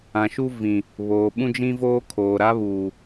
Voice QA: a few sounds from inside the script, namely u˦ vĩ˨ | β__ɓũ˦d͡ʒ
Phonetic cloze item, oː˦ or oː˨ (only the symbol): oː˨